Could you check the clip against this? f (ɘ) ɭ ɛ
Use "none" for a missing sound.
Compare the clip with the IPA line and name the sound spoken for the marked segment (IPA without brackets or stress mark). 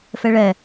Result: ɛ